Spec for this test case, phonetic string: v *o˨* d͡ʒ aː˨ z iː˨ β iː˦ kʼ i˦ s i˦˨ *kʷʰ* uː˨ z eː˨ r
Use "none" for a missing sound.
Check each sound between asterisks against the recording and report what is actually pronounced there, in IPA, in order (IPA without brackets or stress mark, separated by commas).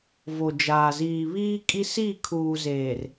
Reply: o˨, kʰ